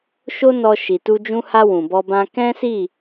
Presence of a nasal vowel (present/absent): present